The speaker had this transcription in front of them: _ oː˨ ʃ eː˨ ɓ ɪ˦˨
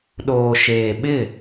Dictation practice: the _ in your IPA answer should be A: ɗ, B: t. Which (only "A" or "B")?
A